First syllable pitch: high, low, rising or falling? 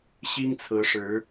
high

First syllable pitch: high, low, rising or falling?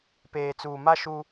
low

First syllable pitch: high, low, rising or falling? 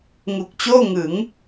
low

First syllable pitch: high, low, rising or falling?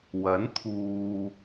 rising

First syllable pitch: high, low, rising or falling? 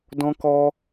high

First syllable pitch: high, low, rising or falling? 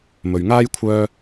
low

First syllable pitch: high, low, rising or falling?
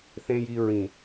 low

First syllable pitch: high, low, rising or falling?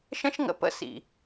high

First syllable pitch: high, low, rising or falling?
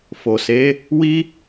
low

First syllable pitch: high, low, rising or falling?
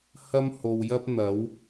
high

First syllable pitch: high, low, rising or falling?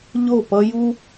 falling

